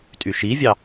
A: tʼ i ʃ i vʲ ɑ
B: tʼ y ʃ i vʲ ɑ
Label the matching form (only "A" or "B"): B